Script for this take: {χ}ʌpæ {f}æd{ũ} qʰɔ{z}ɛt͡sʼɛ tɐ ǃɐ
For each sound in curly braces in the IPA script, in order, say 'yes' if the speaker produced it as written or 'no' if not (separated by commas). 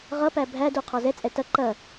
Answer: no, no, no, yes